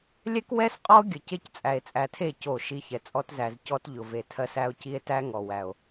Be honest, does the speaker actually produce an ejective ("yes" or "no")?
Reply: yes